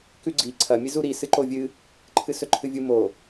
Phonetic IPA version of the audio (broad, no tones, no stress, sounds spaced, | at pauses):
k ʉ ɡ͡ǀ i ǀʰ ɐ mʲ ɨ z u ɾ i s ɨ ǃ o vʲ ɨ | ǃʰ ɨ s ɵ ǃʰ ɨ vʲ u m o